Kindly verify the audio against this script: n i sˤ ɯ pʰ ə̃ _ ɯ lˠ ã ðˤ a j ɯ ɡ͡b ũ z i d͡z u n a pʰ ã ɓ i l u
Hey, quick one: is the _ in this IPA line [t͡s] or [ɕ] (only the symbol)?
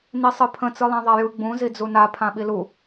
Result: t͡s